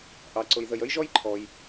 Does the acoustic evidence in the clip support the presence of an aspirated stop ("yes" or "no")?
yes